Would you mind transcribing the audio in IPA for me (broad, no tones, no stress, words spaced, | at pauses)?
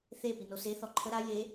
θe pinose θɔǃʰə ɾa je